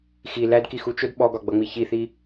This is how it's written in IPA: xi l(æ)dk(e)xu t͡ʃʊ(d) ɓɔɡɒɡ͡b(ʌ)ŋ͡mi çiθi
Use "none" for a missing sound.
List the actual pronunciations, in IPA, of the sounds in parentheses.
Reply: æ, i, d, ʌ

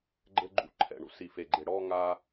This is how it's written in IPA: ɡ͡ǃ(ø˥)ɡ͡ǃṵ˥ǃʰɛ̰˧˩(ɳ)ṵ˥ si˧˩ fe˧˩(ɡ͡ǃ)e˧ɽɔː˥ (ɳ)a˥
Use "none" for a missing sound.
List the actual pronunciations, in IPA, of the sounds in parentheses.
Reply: ɘ˥, ɳ, ɡ͡ǃ, ŋ

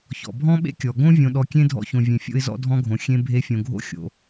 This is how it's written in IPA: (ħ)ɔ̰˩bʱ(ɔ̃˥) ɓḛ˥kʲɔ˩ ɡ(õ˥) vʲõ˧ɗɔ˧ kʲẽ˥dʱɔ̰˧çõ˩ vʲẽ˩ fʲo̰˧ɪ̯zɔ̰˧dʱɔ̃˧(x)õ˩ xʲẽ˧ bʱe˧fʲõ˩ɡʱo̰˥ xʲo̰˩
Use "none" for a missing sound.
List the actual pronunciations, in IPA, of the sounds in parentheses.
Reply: ç, ɔ̃˥, õ˥, ɡʱ

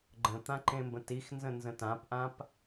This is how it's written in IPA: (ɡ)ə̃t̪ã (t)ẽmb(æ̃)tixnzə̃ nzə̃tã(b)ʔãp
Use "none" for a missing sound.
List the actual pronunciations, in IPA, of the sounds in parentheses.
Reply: ɡ͡ǃ, ǃ, ə̃, p

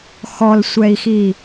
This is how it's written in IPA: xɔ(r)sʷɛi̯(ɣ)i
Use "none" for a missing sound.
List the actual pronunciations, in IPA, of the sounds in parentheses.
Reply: l, x

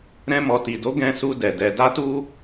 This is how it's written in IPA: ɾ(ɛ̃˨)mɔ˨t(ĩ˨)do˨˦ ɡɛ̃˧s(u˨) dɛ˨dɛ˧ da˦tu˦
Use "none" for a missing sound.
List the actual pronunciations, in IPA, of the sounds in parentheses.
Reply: ɛ̃˧, i˨, u˧

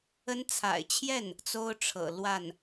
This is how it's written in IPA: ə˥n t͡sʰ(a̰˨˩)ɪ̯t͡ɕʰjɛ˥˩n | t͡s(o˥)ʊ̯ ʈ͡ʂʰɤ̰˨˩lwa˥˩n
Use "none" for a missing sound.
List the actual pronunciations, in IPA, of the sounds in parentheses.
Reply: a̰˨˩, o˥

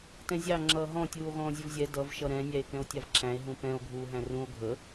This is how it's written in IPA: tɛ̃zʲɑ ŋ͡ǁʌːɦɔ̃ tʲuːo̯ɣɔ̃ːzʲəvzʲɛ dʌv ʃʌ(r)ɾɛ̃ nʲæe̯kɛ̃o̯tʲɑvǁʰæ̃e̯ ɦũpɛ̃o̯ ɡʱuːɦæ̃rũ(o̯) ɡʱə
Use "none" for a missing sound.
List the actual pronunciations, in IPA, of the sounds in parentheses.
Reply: none, o̯

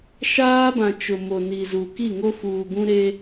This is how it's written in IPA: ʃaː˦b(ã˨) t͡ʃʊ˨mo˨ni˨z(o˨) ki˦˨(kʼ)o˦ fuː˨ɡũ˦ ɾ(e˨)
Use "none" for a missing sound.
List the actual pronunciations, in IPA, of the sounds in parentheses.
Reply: ã˨, u˨, ŋ, e˦

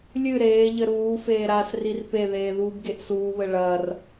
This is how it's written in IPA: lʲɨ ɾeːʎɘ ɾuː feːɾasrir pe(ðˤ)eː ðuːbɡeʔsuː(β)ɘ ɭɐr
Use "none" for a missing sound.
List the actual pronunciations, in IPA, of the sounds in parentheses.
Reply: ð, β

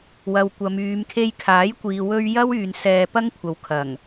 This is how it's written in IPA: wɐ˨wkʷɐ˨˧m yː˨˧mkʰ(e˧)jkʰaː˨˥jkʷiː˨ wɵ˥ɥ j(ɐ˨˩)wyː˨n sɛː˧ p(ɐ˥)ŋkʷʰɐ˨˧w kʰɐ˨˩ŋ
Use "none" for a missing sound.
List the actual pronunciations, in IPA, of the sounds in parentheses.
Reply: e˧, ɐ˥, ɐ˥

